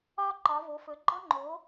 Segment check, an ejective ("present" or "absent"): absent